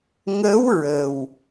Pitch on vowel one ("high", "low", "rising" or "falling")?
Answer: rising